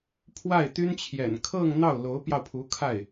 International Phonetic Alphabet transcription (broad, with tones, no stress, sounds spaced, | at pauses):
pʰ w a˥˩ ɪ̯ t̪ y˥ n t͡ɕʰ j ɛ̰˨˩ n kʰ ɤ˥˧ ŋ n̪ ɑ˥˩ ʊ̯ l o˧˥ ʊ̯ p j ɑ˧ ʊ̯ pʰ u˧˥ kʰ a˥˩ ɪ̯